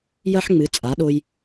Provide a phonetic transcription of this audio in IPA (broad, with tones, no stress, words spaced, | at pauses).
jɐ˦ħŋ͡mɨ˨˦ t͡sʼa˨˦ɗo˧j